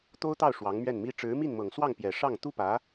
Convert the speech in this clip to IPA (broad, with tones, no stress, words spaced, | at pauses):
t̪o˥ʊ̯t̪ɑ˥˩ʊ̯ ʂwɑ˧˥ŋmɥɛ˥˩nmi˥ ʈ͡ʂɻ̩˧˥mi˥˩nmɤ˨˩ŋswɑ˥˩ŋ pjɛ˨˩ʂɑ˥˩ŋ t̪u˥pä˧˥